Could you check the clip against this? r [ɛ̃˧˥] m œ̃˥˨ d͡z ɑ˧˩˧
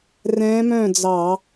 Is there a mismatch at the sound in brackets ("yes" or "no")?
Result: no